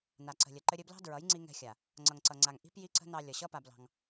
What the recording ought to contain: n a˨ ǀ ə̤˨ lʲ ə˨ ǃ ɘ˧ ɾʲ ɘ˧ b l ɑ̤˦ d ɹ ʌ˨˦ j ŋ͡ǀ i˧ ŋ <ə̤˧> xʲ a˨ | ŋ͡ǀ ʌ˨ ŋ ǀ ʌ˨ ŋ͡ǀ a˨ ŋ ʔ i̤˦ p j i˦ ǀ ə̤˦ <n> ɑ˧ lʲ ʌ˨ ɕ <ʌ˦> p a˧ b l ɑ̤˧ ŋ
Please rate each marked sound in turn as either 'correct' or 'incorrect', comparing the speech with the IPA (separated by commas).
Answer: incorrect, correct, correct